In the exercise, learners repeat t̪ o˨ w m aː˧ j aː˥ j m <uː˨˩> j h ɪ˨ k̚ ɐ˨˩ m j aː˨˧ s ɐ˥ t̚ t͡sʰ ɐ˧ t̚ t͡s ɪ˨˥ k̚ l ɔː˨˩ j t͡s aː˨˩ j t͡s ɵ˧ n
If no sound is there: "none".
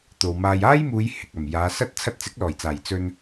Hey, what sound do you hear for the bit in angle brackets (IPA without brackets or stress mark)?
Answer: uː˨˧